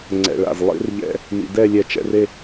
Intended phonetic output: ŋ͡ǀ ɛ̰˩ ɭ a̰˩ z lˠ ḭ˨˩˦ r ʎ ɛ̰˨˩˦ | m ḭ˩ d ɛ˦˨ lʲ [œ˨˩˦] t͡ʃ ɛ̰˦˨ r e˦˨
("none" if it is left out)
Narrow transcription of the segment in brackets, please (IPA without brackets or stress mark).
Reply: ɛ˨˩˦